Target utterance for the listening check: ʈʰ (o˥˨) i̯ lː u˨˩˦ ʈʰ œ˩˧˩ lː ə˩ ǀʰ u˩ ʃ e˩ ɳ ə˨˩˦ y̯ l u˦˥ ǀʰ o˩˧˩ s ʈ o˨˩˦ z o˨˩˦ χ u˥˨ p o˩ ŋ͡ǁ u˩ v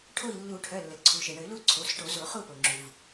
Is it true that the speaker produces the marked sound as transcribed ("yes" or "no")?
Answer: yes